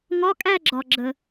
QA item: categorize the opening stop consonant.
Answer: ejective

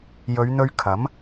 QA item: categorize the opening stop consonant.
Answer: aspirated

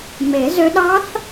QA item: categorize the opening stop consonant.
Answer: implosive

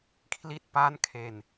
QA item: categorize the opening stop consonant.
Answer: aspirated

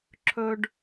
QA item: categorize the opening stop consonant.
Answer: click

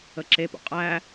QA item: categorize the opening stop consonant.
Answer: click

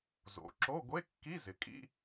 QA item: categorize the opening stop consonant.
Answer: click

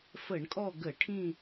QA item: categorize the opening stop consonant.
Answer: ejective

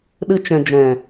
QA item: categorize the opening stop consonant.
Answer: implosive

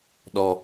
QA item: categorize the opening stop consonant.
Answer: implosive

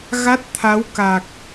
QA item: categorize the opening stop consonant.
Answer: plain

